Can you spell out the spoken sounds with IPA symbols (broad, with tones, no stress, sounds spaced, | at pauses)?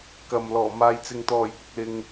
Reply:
k ɐ˨ m l ɔː˨˩ m aː˨ j t͡s ɪ˨ ŋ t̪ ɔː˨˩ j p ʊ˨ k̚ l ɪ˨ ŋ